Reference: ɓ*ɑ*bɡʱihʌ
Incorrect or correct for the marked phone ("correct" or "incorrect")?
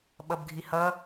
incorrect